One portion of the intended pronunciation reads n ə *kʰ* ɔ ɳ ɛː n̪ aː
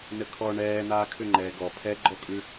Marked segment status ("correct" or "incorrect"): correct